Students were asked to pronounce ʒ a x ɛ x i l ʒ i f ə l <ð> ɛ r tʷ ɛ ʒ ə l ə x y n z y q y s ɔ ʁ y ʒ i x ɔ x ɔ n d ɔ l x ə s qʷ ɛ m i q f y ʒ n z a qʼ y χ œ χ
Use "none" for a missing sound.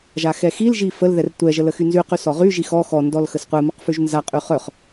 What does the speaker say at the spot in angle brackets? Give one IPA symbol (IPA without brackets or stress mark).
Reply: ð